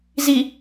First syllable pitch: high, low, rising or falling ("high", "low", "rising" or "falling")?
low